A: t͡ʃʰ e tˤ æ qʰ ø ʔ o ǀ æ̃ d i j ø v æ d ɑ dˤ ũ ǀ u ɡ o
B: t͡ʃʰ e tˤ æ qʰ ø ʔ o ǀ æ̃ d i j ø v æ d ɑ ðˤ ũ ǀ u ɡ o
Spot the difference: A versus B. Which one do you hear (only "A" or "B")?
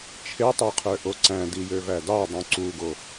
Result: A